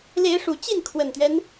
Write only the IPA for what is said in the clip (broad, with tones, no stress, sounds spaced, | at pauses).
l e˨˦ ɪ̯ ʂ u˨˩ t͡ɕ i˥˨ n kʰ w ə˨˩ n t̪ ɥ ɛ˦ n